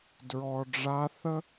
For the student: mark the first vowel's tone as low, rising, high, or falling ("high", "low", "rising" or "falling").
low